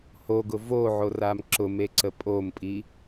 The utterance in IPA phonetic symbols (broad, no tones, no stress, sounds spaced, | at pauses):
h o ɡ ʊ v o ʕ o r a m ǁ ʊ m e ǀ ə pʼ o m pʼ i